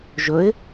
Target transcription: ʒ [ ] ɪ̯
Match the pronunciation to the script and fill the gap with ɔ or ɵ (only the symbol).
ɵ